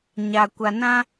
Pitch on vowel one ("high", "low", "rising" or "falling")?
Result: low